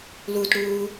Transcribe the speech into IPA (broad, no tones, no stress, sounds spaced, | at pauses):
l u t ɽ uː